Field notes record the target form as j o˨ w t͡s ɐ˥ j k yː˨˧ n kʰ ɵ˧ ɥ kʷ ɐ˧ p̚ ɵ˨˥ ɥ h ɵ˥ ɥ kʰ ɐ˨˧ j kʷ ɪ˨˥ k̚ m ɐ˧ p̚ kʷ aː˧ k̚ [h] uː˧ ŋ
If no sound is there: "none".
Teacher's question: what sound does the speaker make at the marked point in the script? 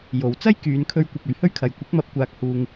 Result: h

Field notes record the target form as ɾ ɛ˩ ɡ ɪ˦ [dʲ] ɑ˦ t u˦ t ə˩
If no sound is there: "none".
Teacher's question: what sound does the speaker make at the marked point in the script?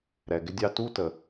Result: dʲ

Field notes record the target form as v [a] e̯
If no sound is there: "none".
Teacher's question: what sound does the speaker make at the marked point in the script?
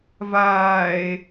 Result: aː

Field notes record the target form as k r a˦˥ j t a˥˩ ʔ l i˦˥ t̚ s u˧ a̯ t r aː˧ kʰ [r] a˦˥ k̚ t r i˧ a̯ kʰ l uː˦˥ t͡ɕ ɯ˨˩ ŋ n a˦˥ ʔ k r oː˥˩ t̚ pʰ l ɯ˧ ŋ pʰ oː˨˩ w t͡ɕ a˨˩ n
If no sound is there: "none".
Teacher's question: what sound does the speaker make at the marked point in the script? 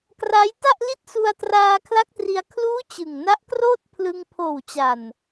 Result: l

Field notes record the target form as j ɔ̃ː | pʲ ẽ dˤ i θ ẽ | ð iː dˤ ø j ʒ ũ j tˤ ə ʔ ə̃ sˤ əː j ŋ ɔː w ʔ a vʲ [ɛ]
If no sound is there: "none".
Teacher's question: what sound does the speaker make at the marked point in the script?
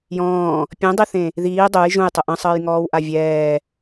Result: ɛː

